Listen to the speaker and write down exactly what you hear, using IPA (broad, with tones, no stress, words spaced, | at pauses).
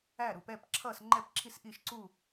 æ˥˩ɾu˧˩˧p ɛː˥˩pǁʰʌː˥˩sŋ͡ǃɛ˥˩p ǁʰi˥˩sʔi˥˩ʃǀuː˥˩